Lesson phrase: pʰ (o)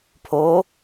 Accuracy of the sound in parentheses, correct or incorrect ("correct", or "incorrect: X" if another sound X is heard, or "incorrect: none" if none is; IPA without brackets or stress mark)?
correct